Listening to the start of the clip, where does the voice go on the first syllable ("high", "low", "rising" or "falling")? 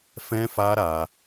high